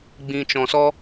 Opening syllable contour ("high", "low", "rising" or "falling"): low